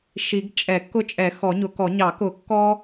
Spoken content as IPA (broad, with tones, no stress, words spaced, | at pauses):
ʃi˨˩˦ɡ t͡ʃʼɛ˨˩˦kːʊ˦ t͡ʃʼɛ˨˩˦xɔ˨˩˦ɲʊ˨˩˦kɔ˨˩˦ ɲɑ˨˩˦kʊ˨˩˦kːɔ˦